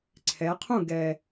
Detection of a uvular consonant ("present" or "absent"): present